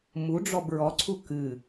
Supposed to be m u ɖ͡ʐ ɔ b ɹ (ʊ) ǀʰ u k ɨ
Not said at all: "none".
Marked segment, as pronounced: ɔ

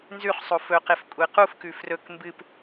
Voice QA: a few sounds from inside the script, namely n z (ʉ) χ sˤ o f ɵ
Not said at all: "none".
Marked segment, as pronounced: ʉ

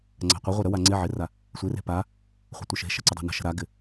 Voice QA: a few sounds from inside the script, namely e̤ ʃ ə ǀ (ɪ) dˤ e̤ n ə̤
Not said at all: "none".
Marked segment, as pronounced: ɪ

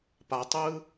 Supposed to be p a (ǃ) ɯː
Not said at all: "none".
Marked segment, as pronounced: tˤ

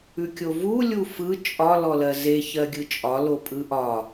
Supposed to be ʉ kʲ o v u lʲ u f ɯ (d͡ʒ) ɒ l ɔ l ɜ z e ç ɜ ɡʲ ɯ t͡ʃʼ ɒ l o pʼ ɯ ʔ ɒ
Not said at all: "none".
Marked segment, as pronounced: t͡ʃʼ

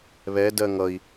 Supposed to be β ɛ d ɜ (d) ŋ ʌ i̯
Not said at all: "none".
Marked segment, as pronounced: none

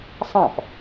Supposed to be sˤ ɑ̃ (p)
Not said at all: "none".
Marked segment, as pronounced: p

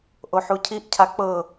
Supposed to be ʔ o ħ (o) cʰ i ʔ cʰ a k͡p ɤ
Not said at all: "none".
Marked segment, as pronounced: u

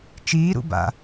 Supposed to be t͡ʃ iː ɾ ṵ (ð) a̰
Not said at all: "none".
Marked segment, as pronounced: b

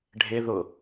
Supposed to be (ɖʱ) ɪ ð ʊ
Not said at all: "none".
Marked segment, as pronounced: ɖʱ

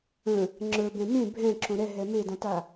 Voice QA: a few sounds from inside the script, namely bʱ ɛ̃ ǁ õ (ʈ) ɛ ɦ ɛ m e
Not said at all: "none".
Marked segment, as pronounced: ɾ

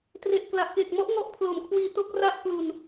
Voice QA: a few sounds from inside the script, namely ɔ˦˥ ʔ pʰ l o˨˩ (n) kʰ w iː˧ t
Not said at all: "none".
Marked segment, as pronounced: m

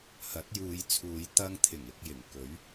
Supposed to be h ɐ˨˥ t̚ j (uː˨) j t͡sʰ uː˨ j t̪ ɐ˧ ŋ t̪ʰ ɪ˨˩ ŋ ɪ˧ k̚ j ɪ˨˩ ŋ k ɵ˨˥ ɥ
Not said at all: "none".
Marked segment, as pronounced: uː˨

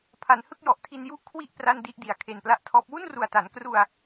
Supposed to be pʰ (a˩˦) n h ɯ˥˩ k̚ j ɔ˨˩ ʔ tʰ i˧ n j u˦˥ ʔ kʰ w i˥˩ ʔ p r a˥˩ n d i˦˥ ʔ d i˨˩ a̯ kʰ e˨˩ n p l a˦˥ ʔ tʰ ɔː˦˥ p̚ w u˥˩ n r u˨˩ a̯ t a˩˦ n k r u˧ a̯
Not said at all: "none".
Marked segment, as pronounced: a˩˦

